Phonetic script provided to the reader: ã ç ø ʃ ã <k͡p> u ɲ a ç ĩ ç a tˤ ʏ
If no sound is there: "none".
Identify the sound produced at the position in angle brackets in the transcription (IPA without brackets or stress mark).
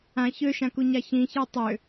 k